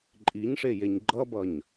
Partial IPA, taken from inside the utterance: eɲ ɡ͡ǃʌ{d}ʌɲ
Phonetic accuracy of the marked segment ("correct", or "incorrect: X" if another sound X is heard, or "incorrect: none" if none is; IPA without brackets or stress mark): incorrect: b